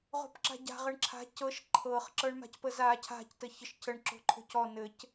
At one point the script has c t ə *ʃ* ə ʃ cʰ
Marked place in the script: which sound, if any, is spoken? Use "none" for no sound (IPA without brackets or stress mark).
ç